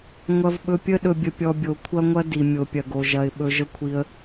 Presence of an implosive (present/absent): present